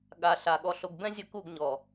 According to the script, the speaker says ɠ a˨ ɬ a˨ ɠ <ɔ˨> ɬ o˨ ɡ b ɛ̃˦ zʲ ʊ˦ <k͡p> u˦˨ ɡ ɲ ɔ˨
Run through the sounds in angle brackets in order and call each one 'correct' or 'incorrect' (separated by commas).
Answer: correct, incorrect